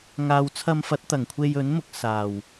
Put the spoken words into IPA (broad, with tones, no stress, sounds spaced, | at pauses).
ŋ aː˨ w t͡sʰ ɐ˧ m f ɐ˨˥ t̚ t̪ ɐ˨˩ ŋ kʷʰ e˧ j ɵ˨˥ n m ʊ˨ k̚ s aː˨˩ w